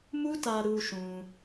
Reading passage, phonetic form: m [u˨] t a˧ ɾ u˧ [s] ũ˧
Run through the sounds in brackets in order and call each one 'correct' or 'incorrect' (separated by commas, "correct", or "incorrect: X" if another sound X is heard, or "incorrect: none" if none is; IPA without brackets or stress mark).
incorrect: u˦, incorrect: ʃ